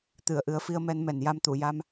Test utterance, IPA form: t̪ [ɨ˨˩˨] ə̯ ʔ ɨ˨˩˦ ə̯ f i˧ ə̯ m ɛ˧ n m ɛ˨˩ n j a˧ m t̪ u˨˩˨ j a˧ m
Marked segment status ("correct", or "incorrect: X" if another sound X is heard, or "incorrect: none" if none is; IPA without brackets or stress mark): correct